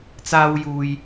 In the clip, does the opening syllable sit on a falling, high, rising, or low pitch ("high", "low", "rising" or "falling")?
high